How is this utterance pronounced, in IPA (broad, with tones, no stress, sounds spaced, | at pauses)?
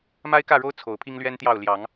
m a˦ ɪ̯ k ä˥˨ ɻ o˦ ʊ̯ t͡sʰ o˨˦ ʊ̯ pʰ i˦ ŋ l ɥ ɛ˦ n t̪ j ɑ˥˨ ʊ̯ l j ɑ˨˦ ŋ